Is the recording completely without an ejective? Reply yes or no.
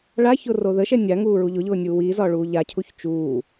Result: yes